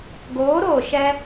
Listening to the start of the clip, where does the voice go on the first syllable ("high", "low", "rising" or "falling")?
rising